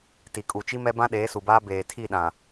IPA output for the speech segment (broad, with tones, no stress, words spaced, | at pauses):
ti˨kʼu˨t͡ʃi˦mɛ˦ bã˦ɗeː˨˦su˨baː˦ beː˨tʰi˦˨ ɗã˨